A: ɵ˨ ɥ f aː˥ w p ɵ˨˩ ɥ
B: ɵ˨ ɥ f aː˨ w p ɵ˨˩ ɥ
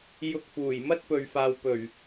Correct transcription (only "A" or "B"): B